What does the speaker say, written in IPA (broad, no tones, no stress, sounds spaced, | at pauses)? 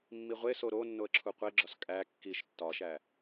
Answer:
mː i ʁʷ e s o ɾ o nː o ə̯ ǁʰ u qʷ e ɡ͡ǁ ɒ s kʼ æ kː i ʃ tː ɒ ʃ æ